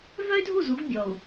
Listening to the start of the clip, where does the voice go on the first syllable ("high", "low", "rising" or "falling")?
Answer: high